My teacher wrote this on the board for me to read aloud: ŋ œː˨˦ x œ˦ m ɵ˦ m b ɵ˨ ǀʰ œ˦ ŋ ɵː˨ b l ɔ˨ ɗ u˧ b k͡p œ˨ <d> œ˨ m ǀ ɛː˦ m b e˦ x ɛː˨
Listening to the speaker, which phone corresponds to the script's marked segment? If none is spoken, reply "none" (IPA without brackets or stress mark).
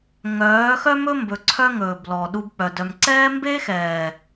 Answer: d